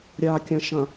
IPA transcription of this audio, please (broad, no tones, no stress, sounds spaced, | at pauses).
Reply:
ɾʲ a kʲ ɐ̃ ʃ ɐ̃